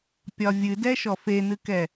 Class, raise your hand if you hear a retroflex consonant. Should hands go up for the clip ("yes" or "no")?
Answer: no